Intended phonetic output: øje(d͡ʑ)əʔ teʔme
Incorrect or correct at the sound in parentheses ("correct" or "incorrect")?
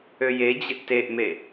correct